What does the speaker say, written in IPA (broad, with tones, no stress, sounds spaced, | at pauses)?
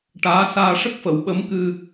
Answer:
ʈ aː˧˥ s aː˧ ʂ ə˦˥ k̚ f ə˨˩˦ w ɓ ə˧˥ m k ɨ˧